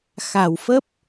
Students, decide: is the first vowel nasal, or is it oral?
oral